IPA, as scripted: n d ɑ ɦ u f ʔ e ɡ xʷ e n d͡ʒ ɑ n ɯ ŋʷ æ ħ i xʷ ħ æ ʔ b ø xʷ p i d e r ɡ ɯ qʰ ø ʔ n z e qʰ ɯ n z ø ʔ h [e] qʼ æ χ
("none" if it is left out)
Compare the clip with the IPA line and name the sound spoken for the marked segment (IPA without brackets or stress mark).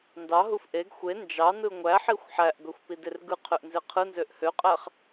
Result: ø